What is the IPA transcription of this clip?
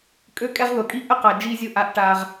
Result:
kʼ ø˦ kʼ ɛ˦ ʁ ð ʊ˨ kʼ i˦ ʔ ə˦ q a˨ d͡ʒ i˦ zʲ ʊ˦ ʔ a˦ ʔ ʈ a˦ ʁ

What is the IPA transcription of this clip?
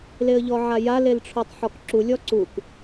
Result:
l e ə̯ ʎ ɔ ʕ a j a l e l ʈ͡ʂʰ o tˤ ħ ɔ k ǁ u lʲ ɔ ǀ u k

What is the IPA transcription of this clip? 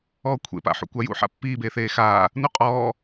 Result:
ɔː kʷʰ ḛ p a̰ ħ ṵ kʷ a j ṵ ħ a̰ pː iː b eː θ eː x aː | n u qʼ ɔː

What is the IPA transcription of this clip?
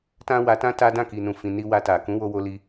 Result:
t ã˦ w a˧ t ã˦ t a˦ d ã˦˨ k i˨ n ũ˨ f ĩ˨ n i˧ w a˧ t a˨ k ũ˨˦ w o˧ w o˧ l i˧

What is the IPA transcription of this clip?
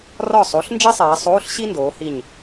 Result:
r ɒ˧˩ sˤ o˩˧ ɬ n d͡ʒ i˥ sˤ eː˩˧ sˤ oː˧˥˧ ɬ ɕ i˥ n d oː˩˧ h i˧˩ ɲ

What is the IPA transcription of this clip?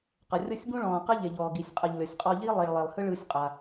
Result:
q ɤ˩ rʲ ɤ˥ sʲ ɡ ũ˥ ɭ ɔ̃ː˩ q ɯ˥ ʎ e˩ ʎ ɔː˩ ɡ i˩ sʲ qʼ ɯ˩ ʎ lʲ ɔ˩ sʲ qʼ ɔ˧ ʎ i˥ lˠ i˩ ɭ lˠ e˩ lˠ h ɯ˥ ɭ ɯː˧ sʲ qʼ a˩

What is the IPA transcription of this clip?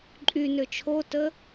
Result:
ǃʼ y n ø t͡ʃʰ o t ə

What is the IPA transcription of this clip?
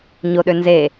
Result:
ɲ o ɗ ø n z e

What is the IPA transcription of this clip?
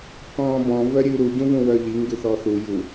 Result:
k ɔ̃ː b ɔ̃ v œ ɾʲ ʉː ɾ u ɟ ũ v ũ w œ ʎ i ŋ ɡ ʉ θ ɔ θ u j u

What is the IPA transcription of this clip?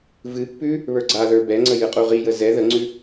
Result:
v ɨ pː ʉ | β ə˞ ɡ͡ǀ a ð ə˞ b ɛ ŋ͡ǀ ə j ɨ qʼ u ʁ i j ə z ɛ ð ə ŋ͡ǀ ʉ

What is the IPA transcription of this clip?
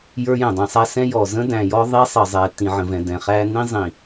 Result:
j ə˞˦ j ɛ̃˨ dˤ ĩ˨ sˤ æ˦ s ɛ̃˦ j ɔ˨ z ə̃˦ d æ̃˨ j ɔ˦ ðˤ i˦ sˤ ə˨ zˤ ɛ˨ t ĩ˨ ʕ ə̃˨ v ɛ̃˨ d ɛ̃˨ χ æ˦ n ĩ˦ zˤ ĩ˨

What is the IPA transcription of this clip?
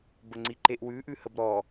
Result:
b ə ŋ͡ǀ i ǃ e ʔ w ʉ ʔ ʉ h ə b ɾ ɔ

